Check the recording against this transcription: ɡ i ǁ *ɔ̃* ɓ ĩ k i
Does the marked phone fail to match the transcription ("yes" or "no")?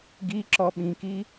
yes